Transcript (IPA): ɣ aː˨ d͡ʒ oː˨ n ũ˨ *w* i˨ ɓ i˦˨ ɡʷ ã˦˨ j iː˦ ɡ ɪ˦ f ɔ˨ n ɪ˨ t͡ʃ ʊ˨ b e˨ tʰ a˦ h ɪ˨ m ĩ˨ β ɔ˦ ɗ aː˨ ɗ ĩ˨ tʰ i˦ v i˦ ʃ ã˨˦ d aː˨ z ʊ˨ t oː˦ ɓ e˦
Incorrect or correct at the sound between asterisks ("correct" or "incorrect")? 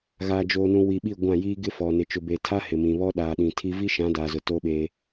correct